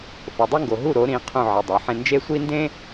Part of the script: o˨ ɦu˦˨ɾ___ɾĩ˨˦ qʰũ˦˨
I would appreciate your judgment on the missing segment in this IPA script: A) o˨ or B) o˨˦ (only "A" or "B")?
B